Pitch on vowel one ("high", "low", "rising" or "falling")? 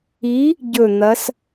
rising